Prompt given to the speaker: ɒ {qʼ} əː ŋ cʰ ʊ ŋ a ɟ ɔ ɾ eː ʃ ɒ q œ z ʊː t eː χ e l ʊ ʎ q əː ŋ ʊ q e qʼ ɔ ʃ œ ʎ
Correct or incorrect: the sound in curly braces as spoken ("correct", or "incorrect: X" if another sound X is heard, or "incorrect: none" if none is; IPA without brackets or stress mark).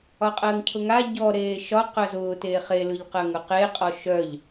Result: correct